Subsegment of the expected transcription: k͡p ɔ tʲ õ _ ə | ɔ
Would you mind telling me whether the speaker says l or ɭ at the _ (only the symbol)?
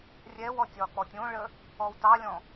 ɭ